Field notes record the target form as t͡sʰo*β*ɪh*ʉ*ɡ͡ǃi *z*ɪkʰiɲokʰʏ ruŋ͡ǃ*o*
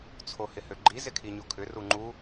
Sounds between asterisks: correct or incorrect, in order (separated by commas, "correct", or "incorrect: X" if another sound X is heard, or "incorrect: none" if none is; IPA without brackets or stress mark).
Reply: incorrect: h, incorrect: ø, correct, incorrect: u